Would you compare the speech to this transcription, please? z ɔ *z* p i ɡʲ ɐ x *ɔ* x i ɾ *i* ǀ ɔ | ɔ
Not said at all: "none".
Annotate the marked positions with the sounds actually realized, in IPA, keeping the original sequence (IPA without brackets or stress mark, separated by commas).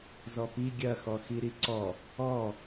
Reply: none, ɔ, i